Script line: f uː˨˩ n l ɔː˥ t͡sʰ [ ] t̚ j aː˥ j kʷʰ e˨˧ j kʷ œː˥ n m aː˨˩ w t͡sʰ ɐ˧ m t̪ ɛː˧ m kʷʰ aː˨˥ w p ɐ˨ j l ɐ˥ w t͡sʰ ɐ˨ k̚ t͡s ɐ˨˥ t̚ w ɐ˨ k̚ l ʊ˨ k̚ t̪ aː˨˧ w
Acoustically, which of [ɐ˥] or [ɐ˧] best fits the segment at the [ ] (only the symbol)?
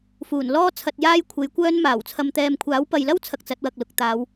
ɐ˧